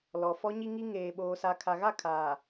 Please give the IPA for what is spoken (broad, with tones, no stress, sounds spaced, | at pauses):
l ɔ˨ f ɔ˦ ɲ i˦ ŋ i˦ ŋ eː˨ ɓ oː˨ s a˨ kʰ a˨ ɣ a˦˨ kʰ aː˨